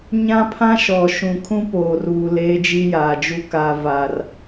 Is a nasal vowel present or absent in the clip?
present